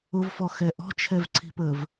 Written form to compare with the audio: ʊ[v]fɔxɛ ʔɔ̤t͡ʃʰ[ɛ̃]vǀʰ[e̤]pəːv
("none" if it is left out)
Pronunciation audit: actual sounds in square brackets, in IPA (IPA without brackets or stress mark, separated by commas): v, ɛ, i̤